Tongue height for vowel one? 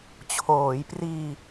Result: mid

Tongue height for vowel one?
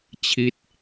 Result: high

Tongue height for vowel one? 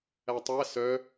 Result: low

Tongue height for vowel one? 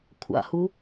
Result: low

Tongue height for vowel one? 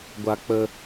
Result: low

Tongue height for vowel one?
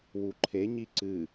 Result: high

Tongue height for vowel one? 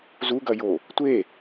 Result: high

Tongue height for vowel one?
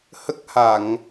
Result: mid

